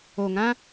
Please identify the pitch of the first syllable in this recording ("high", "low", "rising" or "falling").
low